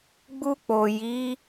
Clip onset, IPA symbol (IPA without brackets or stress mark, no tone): ɡ͡b